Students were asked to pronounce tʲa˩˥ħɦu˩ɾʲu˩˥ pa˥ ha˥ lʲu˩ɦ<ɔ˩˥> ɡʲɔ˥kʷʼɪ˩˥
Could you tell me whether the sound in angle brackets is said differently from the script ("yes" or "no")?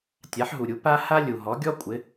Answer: no